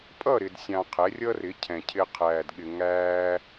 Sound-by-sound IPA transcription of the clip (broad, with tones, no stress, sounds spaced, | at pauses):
pʼ ʌ˦˨ ɾ ɪ˨ d sʲ ɑ̃˨ qʰ ɛ˨˦ rʲ ʌ˦ r ɪ˨˦ cʰ ɛ̃˨ cʰ ɪ˧ qʰ æː˨ d ɠ ɪ˨ ŋ æː˧